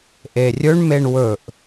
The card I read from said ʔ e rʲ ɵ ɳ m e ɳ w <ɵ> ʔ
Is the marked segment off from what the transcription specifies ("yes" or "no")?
no